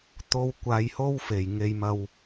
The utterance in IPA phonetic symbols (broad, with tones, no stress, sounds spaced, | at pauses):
t̪ o˧ w kʷ aː˧ j h o˥ w f e˨˩ j ŋ e˨ j m ɐ˨ w